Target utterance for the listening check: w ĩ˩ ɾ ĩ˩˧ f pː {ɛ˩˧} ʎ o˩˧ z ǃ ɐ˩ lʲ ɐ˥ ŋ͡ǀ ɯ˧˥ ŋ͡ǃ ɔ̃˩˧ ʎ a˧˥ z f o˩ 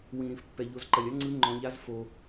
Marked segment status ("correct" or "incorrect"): incorrect